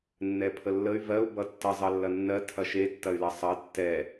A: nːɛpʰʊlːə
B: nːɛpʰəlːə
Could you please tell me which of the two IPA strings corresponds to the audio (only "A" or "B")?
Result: B